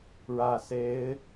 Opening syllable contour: low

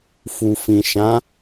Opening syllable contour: low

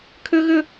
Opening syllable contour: high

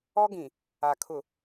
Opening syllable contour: high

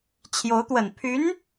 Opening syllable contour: rising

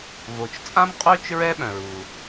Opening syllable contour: low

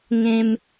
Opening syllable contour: high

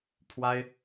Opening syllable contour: high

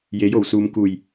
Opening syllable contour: rising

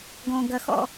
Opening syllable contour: low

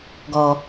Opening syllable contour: low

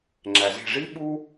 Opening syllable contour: low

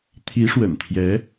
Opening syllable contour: rising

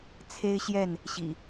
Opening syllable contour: high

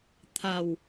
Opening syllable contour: low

